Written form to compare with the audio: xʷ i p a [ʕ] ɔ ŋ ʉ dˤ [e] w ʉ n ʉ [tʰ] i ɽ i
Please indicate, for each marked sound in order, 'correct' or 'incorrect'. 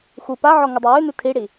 correct, correct, correct

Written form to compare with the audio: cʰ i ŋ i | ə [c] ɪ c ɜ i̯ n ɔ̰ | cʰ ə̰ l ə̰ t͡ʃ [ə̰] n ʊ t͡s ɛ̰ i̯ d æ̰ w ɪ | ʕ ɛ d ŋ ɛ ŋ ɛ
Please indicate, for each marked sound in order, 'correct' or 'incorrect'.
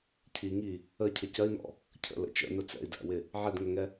incorrect: cʰ, correct

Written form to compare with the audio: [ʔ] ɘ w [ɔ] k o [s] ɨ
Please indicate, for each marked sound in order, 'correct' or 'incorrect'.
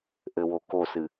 correct, incorrect: o, correct

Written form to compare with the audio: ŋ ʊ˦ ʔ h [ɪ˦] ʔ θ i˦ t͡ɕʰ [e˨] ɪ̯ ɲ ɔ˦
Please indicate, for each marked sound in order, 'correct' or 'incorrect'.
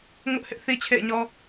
correct, incorrect: ḛ˦˨

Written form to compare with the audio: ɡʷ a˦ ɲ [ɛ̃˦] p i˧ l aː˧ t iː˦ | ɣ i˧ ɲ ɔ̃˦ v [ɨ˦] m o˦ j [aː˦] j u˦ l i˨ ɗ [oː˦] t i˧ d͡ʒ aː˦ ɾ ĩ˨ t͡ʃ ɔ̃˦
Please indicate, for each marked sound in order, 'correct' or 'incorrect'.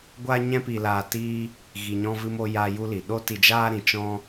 correct, correct, incorrect: aː˧, incorrect: o˦

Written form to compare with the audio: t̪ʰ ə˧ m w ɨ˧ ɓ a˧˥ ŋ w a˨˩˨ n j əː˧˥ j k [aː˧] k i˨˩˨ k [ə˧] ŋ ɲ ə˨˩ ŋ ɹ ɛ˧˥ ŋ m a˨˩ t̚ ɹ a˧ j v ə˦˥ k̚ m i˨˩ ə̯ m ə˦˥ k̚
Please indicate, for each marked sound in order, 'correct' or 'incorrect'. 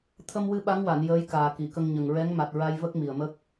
incorrect: aː˨˩, correct

